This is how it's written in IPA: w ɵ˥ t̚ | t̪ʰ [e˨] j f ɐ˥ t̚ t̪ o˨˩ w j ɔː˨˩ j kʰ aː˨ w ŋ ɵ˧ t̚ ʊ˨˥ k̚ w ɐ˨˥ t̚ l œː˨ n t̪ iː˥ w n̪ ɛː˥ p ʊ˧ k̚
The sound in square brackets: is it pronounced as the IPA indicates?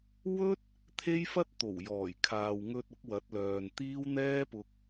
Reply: no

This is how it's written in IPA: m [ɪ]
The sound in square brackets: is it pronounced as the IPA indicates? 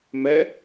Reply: no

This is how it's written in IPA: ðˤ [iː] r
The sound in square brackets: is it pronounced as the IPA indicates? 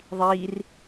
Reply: yes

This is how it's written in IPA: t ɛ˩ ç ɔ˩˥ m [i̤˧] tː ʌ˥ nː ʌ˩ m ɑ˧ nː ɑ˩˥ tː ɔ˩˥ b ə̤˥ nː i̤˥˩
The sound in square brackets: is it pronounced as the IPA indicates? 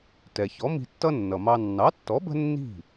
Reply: yes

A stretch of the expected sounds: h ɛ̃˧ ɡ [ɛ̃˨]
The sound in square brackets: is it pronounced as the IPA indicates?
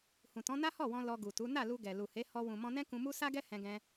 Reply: no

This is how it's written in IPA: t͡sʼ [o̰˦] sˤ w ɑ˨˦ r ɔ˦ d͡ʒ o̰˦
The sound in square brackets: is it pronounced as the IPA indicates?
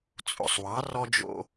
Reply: no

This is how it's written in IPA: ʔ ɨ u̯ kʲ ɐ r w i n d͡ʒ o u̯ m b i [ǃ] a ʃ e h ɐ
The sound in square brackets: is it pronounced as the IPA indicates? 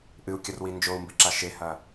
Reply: no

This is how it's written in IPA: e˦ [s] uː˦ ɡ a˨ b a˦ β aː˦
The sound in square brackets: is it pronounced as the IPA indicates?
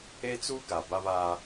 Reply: no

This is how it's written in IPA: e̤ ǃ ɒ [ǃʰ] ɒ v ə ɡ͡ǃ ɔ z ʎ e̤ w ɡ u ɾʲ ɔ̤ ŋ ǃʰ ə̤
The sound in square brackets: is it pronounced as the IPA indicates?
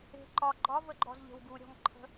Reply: no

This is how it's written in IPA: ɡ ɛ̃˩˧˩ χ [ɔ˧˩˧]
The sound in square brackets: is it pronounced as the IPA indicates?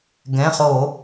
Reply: no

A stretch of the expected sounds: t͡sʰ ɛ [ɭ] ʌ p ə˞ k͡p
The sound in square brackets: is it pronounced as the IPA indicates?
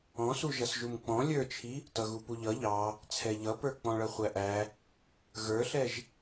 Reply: no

